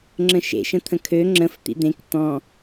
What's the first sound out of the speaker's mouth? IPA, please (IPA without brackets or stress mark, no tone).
ŋ͡ǁ